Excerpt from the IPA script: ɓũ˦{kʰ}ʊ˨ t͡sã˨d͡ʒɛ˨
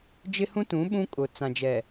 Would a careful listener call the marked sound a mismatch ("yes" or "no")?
yes